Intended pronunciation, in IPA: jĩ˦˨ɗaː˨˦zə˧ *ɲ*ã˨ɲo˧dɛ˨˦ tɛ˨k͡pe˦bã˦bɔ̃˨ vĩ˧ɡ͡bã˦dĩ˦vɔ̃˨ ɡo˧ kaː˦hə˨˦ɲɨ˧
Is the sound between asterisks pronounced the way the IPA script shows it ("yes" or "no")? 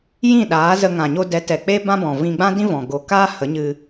no